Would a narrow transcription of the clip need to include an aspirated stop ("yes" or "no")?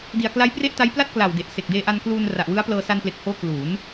no